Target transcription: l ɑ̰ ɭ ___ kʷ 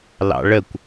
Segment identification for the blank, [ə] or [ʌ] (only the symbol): ə